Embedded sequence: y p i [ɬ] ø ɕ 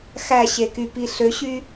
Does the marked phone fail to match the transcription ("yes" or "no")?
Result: no